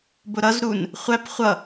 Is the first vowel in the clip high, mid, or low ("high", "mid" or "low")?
high